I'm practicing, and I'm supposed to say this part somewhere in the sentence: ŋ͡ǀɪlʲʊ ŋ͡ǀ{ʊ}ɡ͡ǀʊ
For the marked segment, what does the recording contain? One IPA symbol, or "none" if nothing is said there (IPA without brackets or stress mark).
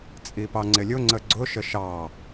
ə